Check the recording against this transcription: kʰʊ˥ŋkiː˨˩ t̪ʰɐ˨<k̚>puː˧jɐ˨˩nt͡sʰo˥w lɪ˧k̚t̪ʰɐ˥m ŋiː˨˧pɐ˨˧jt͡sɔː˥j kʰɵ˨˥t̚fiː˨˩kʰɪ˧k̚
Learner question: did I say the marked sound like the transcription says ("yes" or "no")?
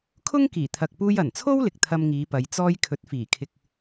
yes